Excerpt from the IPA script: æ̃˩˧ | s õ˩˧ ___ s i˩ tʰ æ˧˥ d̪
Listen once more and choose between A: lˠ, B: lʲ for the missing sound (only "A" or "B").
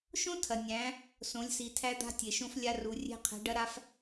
B